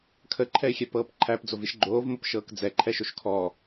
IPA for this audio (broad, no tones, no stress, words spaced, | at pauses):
kʰəǃʰɛɪ̯xʲɛpɤːp ǃʰæpd͡zoviʃ ɡ͡ǃoːvmɤpʃɤːk d͡zɛǃʰɛʃoʃ kʰɔ